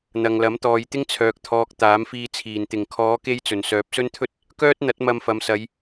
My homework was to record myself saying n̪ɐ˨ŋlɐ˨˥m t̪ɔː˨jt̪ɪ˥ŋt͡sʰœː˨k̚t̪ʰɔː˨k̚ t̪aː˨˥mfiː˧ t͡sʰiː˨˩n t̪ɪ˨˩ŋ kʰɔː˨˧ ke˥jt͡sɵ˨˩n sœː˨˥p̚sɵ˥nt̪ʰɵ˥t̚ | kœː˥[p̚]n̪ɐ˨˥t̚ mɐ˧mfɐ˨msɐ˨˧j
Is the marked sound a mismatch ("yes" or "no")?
yes